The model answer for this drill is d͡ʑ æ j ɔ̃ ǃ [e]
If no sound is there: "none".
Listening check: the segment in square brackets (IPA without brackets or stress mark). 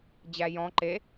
e